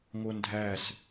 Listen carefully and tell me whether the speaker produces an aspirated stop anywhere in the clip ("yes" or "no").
no